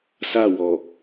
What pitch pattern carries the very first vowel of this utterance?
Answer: falling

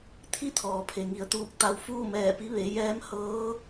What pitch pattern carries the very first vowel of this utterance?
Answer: falling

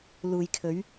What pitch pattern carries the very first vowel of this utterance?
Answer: low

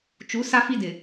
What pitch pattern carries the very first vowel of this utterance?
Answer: rising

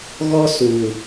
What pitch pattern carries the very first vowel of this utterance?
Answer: high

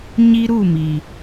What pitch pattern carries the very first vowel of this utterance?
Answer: high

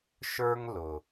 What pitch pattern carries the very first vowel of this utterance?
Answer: high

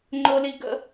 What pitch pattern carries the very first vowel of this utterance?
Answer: high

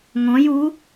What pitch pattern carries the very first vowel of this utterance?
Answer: rising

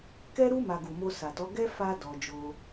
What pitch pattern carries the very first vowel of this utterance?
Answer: high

